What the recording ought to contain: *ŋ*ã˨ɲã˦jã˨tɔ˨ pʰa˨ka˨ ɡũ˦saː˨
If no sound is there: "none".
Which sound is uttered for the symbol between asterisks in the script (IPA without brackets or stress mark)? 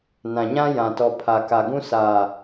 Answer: n